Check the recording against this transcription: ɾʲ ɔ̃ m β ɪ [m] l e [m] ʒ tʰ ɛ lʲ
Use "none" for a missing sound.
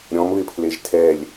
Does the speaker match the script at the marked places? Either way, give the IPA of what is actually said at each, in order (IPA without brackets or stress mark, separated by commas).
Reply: pʰ, none